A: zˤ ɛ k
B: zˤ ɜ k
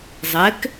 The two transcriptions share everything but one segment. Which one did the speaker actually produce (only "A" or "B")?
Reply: A